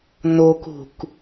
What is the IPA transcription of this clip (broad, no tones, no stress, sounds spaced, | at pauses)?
n o k ṳ k